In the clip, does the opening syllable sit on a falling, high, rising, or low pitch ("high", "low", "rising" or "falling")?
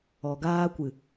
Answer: low